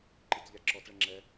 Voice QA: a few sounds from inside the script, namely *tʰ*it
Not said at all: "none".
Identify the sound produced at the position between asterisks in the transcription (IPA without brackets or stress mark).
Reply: ǃ